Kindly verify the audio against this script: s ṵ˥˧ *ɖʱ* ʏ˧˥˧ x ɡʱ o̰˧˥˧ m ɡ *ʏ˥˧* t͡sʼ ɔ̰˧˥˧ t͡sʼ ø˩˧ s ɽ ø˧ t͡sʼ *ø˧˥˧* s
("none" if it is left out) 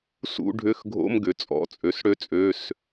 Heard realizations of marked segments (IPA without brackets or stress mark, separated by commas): ɖʱ, ʏ˩˧, ø˩˧˩